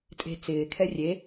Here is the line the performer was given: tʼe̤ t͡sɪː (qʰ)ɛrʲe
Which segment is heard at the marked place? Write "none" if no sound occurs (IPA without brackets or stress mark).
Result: kʰ